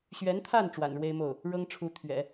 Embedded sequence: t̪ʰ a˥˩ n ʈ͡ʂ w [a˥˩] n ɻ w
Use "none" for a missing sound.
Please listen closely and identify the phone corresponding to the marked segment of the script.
a̰˨˩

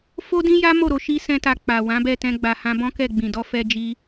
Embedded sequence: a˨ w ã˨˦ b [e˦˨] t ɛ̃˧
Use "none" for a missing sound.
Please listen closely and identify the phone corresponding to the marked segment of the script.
ɛ˦˨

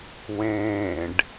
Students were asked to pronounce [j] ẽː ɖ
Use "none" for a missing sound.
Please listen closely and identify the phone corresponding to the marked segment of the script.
w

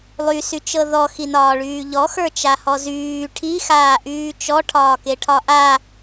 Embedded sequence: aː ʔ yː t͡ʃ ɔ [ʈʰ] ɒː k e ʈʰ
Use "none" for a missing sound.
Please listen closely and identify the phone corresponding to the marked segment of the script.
ʈʰ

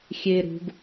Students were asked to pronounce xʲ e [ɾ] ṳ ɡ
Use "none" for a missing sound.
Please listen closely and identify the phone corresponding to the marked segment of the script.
ɾ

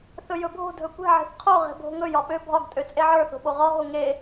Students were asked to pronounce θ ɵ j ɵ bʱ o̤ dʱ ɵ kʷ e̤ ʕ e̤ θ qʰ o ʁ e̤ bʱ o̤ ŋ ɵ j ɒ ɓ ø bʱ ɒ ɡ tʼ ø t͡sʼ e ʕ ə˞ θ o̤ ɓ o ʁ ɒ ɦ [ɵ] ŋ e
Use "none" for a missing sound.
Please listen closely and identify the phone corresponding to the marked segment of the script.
o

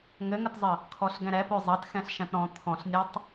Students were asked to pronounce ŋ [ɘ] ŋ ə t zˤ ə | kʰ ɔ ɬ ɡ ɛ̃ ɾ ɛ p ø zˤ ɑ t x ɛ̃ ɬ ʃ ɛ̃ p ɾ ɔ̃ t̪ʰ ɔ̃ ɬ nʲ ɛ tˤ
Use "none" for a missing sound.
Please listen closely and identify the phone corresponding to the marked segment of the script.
ɘ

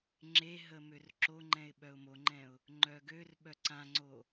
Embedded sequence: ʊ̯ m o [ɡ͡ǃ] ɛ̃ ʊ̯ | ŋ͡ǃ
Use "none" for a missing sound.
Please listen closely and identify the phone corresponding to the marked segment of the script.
ŋ͡ǃ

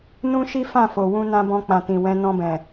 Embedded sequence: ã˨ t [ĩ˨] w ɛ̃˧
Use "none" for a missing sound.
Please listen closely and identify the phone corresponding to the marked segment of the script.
ĩ˨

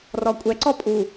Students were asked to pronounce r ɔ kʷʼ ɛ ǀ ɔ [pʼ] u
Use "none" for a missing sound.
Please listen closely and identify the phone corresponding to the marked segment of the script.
pʼ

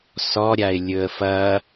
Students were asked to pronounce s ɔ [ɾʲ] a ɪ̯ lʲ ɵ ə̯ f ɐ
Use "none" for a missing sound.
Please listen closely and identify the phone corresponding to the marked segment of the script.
ɾʲ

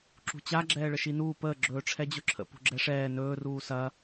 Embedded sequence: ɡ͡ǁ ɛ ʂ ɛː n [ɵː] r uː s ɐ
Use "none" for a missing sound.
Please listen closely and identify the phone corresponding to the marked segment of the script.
ɵː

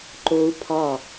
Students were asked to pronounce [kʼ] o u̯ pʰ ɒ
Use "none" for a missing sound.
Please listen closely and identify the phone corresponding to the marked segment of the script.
ǃ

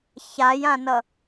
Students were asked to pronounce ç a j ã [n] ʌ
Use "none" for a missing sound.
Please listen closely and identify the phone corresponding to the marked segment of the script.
n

